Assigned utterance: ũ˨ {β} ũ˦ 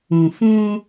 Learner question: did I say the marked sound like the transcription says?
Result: no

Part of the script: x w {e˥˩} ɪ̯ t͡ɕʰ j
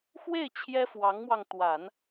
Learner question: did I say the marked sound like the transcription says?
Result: yes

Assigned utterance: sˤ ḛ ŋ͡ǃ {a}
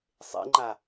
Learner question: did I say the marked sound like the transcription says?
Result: yes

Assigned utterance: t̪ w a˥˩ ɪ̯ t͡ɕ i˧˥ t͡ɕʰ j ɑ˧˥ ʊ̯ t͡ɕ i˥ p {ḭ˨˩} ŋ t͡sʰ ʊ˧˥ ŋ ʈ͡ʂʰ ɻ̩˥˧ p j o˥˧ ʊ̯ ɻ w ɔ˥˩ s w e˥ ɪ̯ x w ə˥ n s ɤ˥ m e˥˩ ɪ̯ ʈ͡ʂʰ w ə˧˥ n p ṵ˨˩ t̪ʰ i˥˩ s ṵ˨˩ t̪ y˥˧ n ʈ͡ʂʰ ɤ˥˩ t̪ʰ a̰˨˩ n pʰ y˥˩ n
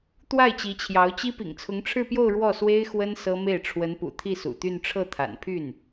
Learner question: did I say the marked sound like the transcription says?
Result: yes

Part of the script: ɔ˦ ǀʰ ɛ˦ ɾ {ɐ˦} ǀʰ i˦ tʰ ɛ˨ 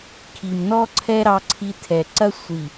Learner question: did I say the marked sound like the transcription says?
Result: no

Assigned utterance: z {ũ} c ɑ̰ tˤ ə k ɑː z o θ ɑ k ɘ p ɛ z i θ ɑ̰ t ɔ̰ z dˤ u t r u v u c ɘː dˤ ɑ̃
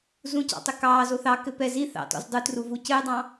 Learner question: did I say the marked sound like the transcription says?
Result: yes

